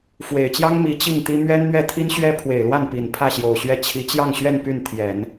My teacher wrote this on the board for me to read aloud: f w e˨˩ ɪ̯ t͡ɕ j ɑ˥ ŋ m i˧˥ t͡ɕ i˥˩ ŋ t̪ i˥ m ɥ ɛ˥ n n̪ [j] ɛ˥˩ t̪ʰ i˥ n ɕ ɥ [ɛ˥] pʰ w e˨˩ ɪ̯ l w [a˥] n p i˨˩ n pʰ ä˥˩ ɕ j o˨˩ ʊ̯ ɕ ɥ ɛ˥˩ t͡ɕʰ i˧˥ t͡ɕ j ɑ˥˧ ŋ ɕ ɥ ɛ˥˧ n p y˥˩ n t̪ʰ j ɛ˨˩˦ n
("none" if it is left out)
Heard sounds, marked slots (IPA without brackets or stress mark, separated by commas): ɥ, ɛ˥, a˥˩